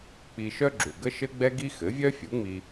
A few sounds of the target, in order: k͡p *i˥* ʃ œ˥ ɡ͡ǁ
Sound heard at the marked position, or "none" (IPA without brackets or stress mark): i˧